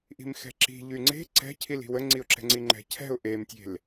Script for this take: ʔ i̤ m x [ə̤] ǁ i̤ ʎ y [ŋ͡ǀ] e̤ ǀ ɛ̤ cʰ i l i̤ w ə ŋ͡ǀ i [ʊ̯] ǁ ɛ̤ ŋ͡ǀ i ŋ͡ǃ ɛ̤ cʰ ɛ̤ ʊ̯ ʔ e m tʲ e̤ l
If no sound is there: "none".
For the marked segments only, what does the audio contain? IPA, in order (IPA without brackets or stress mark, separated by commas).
ɛ̤, ŋ͡ǀ, ʊ̯